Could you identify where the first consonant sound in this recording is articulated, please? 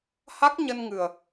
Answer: glottal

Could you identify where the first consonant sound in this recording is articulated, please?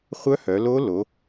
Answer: uvular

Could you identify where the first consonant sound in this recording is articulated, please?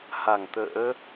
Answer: glottal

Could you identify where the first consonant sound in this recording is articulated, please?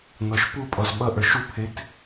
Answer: alveolar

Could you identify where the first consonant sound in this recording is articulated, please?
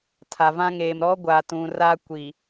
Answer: alveolar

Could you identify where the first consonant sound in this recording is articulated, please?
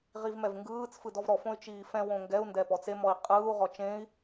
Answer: uvular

